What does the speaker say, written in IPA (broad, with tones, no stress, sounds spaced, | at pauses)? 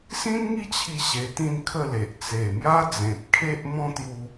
s ĩ˦ n ŋ i˦ t͡ɕʰ i˧ ɕ e˧ t̪ ĩ˥˧ n kʰ ə˥˧ l e˨ ʔ t͡s e˨˩ m j a˦ d͡z ẽ˨ p̚ kʰ e˦ ʔ m ɔ̃˦ t̪ j u˧